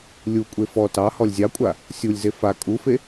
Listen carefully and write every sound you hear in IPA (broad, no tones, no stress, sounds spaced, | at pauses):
lʲ u kʷʼ e f ɔ t ɑ h ɔ lʲ zʲ ɑ kʷʼ a | sʲ u lʲ z e f a kʼ u f e